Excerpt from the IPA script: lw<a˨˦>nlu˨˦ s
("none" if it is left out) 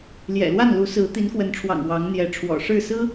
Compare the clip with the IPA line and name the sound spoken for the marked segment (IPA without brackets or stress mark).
a˥˨